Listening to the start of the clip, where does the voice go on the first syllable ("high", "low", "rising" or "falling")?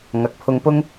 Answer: rising